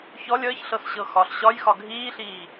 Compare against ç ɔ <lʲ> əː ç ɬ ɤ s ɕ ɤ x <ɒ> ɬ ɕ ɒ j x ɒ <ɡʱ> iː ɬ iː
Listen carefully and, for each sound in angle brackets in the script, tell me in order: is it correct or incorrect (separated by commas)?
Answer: correct, correct, correct